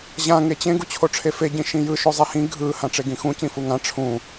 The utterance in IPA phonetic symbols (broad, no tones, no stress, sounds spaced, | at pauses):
ʑ ã ŋ e t͡ɕ ẽ ɡ u t͡ɕʰ o ʈ͡ʂʰ e f e ɟ ĩ ʃ ĩ j ɯ ʃ o zˤ ɛ h ĩ ɡʱ ɯ h ã ʈ͡ʂ e ɡ ĩ x ũ c ĩ f u ŋ ã ʈ͡ʂʰ ũ